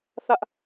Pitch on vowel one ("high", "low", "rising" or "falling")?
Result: high